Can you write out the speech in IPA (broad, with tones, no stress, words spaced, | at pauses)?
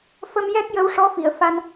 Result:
fə˧mjɛ˦˥k̚ jə˧˥wʂɔ˧˥fi˨˩˨ə̯ fa˧n